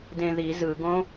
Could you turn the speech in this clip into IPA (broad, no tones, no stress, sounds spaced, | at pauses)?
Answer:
d ẽ ð i z ɯ ɡ õ